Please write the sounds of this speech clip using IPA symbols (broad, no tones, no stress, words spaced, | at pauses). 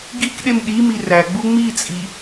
ɡik ɗemɗimi ræɡ͡bu ŋ͡mit͡sʼi